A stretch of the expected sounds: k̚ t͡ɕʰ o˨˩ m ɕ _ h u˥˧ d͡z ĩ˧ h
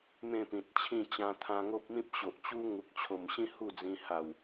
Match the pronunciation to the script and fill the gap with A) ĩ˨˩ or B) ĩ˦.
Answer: B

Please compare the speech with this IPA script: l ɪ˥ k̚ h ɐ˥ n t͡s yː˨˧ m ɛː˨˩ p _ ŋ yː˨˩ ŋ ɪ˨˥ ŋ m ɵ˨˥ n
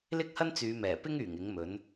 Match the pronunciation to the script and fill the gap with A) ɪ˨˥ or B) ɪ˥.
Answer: B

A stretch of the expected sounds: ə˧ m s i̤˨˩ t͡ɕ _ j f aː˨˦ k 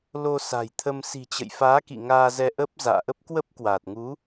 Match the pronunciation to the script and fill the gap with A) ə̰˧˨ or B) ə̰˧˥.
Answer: A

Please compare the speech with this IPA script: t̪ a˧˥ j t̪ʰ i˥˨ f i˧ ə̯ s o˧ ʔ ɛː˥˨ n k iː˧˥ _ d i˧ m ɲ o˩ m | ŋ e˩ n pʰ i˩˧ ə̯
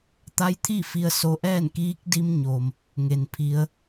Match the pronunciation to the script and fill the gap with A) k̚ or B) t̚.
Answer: A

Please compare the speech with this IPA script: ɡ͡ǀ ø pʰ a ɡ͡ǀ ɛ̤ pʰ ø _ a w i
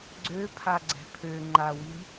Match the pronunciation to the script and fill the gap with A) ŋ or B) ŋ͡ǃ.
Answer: B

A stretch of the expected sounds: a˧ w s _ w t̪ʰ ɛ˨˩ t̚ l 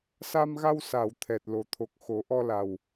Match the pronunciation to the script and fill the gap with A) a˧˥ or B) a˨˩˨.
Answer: B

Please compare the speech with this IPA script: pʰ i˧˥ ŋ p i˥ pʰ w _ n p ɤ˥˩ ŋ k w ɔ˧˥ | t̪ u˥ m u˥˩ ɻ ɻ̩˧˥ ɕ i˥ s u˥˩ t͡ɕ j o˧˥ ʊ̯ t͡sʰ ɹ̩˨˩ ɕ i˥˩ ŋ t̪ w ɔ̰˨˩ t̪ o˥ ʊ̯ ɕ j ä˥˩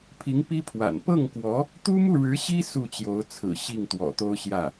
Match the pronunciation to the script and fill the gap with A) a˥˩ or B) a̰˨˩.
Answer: B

